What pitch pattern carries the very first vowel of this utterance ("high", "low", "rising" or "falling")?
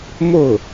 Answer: falling